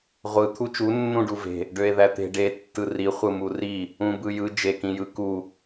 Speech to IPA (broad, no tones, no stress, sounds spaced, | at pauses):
ʁʷ ɯ t̪ʰ u t͡ʃ u nː ũ ɖ u v e̤ | ɖ ø e̯ ð æ t̪ e̤ ɖ e tː ɯ r i χʷ ɯ m u r i | ũ b ɯ j ɯ d͡ʒ e k ĩ j ɯ k u